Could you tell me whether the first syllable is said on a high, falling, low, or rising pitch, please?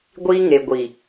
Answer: high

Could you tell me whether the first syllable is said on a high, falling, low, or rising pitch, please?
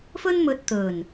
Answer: high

